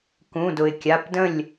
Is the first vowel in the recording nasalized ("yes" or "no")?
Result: yes